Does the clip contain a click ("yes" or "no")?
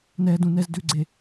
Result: yes